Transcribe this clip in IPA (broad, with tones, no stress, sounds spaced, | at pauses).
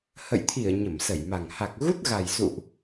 h ə̰˧˨ j t̪ʰ i˧˩ ə̯ ɲ ə˧˩ m s ə˧˩ j m a˨˩ ŋ h a˨˩ k̚ ɣ u˦˥ t̚ ɣ a˨˩ j s ṵ˧˨ ʔ